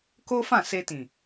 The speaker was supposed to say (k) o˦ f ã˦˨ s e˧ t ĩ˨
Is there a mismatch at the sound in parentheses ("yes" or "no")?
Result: no